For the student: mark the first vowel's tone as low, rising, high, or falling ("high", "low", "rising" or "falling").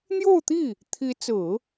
falling